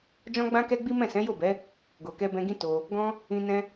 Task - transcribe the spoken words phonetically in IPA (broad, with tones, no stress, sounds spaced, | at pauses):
d͡ʒ ɔ̃˦ ɡ͡b ã˦ k ɛ˦ ɡ͡b i˦ m ɛ̃˦˨ s ɛ̃˨˦ j o˦˨ b ɛ˨˦ | ɡ o˨ k ɛ˧ b ɛ̃˧ ɡ ĩ˦ t o˧ | ɡ ɔ̃˦ | ĩ˧ n ɛ̃˦